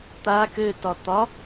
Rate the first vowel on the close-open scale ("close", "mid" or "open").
open